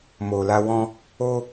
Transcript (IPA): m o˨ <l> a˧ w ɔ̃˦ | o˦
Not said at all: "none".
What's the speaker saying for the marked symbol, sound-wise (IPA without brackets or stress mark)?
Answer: l